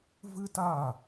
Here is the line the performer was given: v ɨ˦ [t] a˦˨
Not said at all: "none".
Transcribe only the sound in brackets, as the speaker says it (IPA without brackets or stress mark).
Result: t